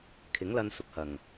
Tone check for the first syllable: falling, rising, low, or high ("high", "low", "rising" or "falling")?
rising